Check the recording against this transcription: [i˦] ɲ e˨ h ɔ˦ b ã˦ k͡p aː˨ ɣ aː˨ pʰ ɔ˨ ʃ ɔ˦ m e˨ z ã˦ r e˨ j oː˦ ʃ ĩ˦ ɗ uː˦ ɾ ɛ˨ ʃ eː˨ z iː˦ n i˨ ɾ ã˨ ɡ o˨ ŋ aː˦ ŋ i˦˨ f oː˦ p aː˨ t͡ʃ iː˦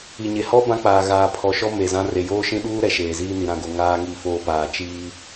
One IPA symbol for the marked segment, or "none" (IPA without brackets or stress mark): i˨